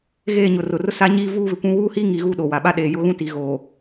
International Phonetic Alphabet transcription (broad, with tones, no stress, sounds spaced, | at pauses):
ɣ eː˦˨ ɲ ʊ˨ r ʊ˨ r ʊ˦ s a˦ ɲ iː˦ v uː˦ β ɪ˨ kʷ ũ˦ w uː˦ h iː˦ ŋ i˨ ɣ u˦ ɗ o˨ w a˨ ɓ a˦ ɗ eː˨ j ʊ˦ ɣ ũ˦ t i˨ ɣ oː˨